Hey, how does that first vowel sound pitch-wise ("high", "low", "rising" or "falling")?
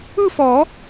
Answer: falling